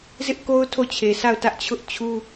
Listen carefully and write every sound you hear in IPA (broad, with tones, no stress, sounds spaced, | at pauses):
z ɪ˦ ʔ k o˦ ʊ̯ tʰ o˦˨ t͡ɕʰ e˨ s a˦˨ ʊ̯ t ä˦ ʔ t͡ɕʰ ʊ˦ ʔ t͡ɕʰ u˦